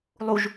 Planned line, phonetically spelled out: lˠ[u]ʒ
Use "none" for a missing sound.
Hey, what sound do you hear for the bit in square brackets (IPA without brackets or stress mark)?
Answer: u